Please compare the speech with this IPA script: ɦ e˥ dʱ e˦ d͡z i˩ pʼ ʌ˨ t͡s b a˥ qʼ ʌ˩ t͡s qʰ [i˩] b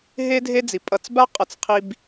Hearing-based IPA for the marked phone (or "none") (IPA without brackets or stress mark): i˨